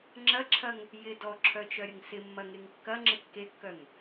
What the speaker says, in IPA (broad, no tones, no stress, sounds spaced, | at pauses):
ŋ͡ǁ ɐ ǁʰ ɐ ŋ | j ɪ d ɔ ǁʰ œ t͡ʃ œ ɾʲ ə ŋ s ɪ mː ɐ ŋ e ŋ kː ɐ ŋ͡ǁ ɪ kː e kː œ ŋ